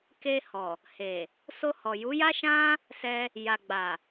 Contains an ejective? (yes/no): no